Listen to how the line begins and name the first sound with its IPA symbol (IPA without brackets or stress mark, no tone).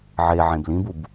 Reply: ʕ